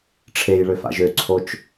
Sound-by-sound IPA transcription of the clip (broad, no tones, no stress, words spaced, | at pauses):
ʈ͡ʂʰejɭøfa̰ʒ øǀʰot͡ʃ